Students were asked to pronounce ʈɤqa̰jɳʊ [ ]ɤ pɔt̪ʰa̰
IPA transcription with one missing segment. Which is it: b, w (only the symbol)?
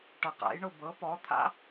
b